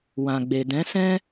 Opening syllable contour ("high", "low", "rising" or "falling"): low